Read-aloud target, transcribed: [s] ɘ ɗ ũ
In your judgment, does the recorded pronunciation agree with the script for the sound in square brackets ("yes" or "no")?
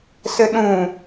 yes